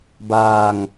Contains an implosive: no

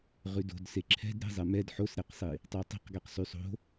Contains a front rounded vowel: yes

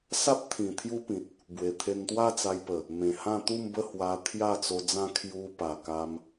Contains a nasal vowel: yes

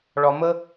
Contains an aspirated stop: no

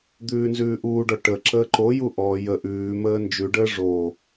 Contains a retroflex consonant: yes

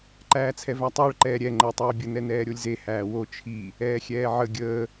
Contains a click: yes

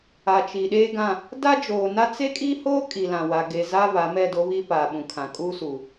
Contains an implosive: yes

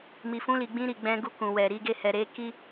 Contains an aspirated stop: no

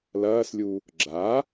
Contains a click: yes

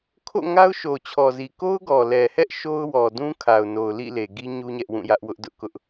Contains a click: no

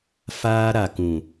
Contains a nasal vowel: yes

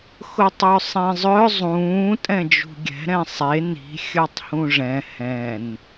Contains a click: no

